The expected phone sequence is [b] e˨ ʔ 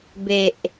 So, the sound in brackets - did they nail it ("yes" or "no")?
yes